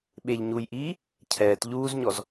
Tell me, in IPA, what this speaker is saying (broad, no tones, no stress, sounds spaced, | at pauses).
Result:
ɓ e ʎ ɲ u j ʔ iː | cʰ ɛː t ʎ uː z ɲ ɔ z